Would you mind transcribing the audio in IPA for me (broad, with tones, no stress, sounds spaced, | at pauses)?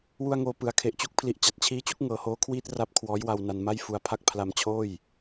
w u˧ a̯ ŋ oː˨˩ p ɯ˩˦ a̯ kʰ e˨˩ ʔ t͡ɕ u˦˥ k̚ pʰ l i˨˩ ʔ t͡ɕ a˨˩ t̚ t͡ɕʰ iː˦˥ t͡ɕ u˥˩ k̚ ŋ ɤː˩˦ h oː˦˥ kʰ w iː˥˩ t̚ r a˦˥ p̚ kʰ w ɔː˦˥ j w a˧ w n a˧ n m a˥˩ j f u˧ a̯ pʰ a˥˩ k̚ pʰ l a˧ m t͡ɕʰ oː˥˩ j